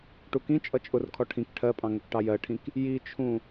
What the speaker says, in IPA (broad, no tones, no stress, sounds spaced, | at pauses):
ʈ u k ĩ t͡ʃʼ ʌ t͡ʃʼ ʊ r kʰ ɔ ʈʰ ĩ k ʈʰ ɜ pʼ ɑ̃ ŋ ʊ k ʈ ɑ j ɜ ʈʰ ĩ k | j i t͡ʃʰ ũ